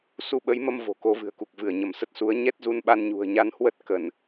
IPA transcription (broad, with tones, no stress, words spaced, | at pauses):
su˧ɓə˨˦jmə˧m vo̤˨˩ko˨˦vɨ̤˨˩ə̯ku˨˩k̚ vɨ˧˩ə̯ɲə˧˩msə˦˥t̚su˨˦ə̯ ɲɛ˦˥t̚zu˧nɓa˧n ɲṳ˨˩ə̯ɲa˨˦nhwə˦˥t̚ kə˧˩˨n